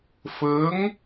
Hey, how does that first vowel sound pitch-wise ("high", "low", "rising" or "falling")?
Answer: rising